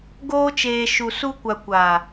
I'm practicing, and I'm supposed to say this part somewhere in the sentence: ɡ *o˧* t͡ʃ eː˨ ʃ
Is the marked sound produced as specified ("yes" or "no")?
no